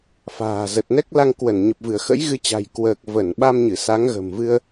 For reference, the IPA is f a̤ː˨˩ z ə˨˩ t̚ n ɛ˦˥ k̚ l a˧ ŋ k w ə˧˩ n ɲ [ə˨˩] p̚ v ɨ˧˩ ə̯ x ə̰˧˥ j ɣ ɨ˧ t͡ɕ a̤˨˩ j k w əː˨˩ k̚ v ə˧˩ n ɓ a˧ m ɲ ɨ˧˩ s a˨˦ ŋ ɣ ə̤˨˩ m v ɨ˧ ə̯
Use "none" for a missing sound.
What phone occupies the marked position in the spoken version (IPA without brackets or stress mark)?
ə˨˩